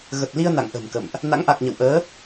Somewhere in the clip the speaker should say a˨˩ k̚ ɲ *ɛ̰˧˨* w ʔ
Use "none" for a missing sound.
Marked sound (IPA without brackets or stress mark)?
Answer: ə̰˧˨